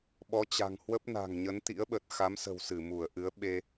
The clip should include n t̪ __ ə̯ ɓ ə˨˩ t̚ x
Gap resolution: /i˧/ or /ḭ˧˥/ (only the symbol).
ḭ˧˥